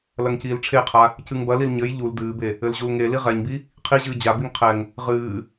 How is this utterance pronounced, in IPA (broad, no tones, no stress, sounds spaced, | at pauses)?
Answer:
l ɐ ŋ c iː l ʈ͡ʂʰ e qʰ a | c ɨ ŋ b ɐ l i l ɲ ɘ j ʎ u l d ɨː b e | ɘ l ʑ u l ŋ e l i ʁ ɛ ɲ b i | qʰ i ʑ ɨː d͡ʑ a b i ŋ qʰ ɛ ŋ | ʁ ɨː